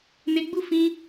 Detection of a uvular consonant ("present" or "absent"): absent